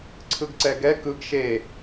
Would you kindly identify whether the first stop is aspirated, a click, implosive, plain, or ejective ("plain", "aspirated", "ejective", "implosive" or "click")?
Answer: click